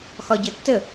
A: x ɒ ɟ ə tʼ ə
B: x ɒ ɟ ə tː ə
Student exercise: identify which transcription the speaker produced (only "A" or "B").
B